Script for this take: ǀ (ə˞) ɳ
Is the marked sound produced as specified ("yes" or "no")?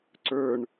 yes